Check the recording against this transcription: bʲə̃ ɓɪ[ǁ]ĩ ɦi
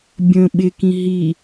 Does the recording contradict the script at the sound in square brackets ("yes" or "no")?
yes